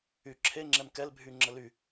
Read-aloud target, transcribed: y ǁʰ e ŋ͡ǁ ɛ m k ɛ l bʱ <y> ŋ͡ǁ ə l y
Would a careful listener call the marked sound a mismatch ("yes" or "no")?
no